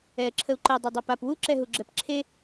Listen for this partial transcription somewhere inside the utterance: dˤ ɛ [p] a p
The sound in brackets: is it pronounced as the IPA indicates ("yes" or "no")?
yes